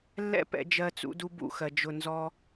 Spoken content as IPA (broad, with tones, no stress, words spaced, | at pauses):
lːɛ̰˦pɛ̰˧ d͡ʒɜ˦t͡sṵ˦du˦bṵ˦ xɜ˨d͡ʒʊ˧nzɔ˦